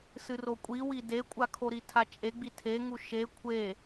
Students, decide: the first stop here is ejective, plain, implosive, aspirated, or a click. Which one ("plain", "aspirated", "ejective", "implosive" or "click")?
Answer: ejective